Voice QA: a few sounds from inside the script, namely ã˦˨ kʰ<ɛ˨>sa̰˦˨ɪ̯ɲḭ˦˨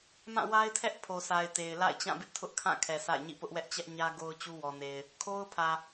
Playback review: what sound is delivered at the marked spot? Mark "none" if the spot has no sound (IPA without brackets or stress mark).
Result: ɛ˨